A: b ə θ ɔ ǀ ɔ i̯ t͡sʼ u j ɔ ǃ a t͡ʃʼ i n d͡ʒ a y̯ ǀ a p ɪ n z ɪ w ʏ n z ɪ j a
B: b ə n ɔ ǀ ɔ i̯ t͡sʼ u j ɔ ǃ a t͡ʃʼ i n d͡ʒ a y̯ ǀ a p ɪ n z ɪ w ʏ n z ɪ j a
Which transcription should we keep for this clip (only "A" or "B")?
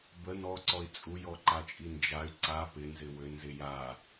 B